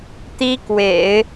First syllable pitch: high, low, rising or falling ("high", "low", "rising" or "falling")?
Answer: high